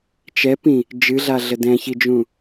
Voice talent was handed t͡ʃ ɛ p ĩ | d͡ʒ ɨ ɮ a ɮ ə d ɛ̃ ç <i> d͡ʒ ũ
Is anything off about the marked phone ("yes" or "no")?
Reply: no